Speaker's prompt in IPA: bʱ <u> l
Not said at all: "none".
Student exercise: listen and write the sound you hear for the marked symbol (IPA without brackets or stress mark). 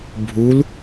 u